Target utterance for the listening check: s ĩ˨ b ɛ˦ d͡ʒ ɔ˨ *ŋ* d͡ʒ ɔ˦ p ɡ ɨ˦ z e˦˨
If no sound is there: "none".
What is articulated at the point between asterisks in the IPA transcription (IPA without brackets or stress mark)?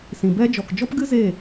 k